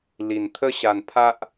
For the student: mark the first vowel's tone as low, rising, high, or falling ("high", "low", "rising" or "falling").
low